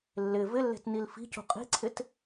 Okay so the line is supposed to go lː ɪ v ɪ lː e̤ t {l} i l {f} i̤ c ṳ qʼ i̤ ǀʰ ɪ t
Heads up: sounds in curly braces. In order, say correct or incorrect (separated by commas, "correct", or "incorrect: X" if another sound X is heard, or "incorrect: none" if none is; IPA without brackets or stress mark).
incorrect: n, correct